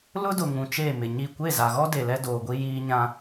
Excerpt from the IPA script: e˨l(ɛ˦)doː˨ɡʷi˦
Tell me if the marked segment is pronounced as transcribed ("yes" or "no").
yes